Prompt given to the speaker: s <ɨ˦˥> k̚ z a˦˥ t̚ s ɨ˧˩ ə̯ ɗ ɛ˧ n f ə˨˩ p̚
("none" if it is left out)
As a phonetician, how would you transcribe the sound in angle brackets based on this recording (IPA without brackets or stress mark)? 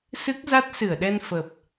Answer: ɨ˦˥